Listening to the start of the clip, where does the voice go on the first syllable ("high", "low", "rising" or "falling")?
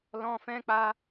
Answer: high